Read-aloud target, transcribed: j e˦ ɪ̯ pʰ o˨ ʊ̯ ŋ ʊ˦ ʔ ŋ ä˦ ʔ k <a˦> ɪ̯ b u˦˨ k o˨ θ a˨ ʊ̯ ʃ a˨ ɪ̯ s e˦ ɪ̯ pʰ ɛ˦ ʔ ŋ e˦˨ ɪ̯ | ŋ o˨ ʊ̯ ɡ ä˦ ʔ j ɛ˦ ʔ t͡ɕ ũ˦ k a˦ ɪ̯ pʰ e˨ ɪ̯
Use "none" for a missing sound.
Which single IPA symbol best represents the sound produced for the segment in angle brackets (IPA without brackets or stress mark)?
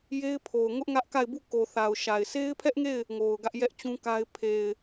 a˦˨